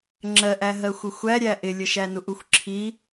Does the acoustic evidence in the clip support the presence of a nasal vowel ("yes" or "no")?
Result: no